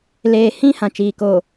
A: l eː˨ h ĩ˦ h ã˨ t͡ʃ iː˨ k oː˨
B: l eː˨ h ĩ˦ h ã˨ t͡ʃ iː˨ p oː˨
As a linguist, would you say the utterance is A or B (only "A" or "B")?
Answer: A